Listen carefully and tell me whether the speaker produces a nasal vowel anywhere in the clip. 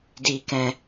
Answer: yes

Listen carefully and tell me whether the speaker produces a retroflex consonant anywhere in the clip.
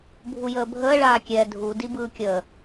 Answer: yes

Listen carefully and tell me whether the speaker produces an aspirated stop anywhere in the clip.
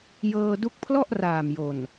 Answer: yes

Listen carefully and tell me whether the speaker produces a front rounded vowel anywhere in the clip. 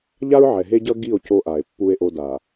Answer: no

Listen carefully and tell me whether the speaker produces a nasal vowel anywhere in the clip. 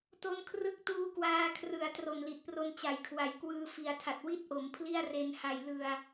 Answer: no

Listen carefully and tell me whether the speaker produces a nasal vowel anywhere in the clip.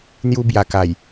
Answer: no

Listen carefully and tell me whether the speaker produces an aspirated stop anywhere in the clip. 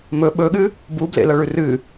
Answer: no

